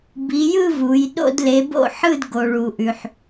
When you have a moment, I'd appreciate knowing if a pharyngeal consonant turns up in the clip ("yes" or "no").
yes